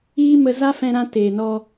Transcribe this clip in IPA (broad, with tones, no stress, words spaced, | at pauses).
iː˦mə˧ za˦fɛ̃˧ɾã˧ teː˨nɔ˧